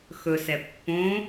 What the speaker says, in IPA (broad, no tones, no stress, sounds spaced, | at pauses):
x ɵ s ɛ pː õ